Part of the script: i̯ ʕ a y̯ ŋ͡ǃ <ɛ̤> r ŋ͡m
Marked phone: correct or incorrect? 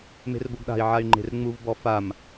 incorrect